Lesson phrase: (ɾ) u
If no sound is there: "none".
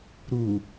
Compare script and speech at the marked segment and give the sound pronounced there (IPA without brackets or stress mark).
ɾ